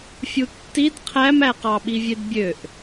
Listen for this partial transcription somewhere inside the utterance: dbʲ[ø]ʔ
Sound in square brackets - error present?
no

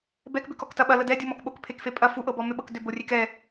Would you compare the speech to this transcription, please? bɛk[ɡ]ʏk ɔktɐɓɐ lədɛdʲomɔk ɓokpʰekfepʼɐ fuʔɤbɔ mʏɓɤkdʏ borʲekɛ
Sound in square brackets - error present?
yes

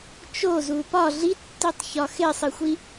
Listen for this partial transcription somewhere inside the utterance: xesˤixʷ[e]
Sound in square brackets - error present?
yes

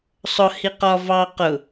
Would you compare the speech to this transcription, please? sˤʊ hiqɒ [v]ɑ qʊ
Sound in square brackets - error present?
no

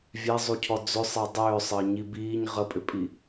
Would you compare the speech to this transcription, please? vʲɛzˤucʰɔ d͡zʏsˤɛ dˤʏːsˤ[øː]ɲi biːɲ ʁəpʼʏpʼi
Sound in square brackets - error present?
yes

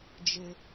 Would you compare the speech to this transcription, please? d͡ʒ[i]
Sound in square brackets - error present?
yes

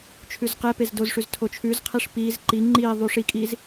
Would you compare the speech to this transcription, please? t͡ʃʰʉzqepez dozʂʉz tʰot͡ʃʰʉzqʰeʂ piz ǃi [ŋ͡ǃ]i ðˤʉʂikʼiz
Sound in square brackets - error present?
no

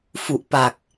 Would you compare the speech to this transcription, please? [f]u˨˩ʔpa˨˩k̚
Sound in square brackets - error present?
no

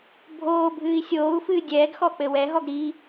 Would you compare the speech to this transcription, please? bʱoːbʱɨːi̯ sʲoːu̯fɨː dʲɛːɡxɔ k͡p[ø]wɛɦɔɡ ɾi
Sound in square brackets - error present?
yes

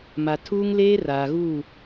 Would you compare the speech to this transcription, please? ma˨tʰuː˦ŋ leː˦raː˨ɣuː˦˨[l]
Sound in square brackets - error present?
yes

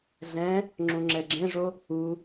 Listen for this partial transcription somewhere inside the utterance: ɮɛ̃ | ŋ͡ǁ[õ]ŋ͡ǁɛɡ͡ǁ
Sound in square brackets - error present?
yes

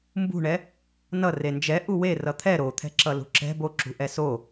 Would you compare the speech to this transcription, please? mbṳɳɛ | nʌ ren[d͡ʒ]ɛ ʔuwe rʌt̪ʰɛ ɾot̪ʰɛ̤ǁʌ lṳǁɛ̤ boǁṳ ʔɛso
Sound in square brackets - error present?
no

